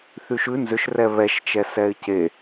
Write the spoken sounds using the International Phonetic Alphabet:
θ y ʃ ʉ n z ʏ ʃ r ɛ β ɛ ʃ t͡ʃ ɛ s ɛ ɪ̯ c e

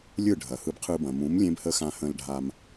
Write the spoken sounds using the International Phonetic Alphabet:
lʲ ɯ˦˨ ɖʱ ɐ˨ h ɯ˧ b qʰ ɯ˧ b ɐ̃˨ m ũ˨˦ m lʲ ẽ˦ b h ə˦ x ã˧ h ə̃˧ l ɖʱ a˧ m

